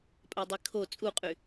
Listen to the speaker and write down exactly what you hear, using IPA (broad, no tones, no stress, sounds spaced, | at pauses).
pʼ a dˤ i kʰ o t͡sʼ u qʼ y